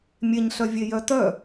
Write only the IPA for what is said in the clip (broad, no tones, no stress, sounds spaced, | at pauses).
mʲ e ɲ ɬ œ vʲ e j œ t œ